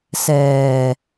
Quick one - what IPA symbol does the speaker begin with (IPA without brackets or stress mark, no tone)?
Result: s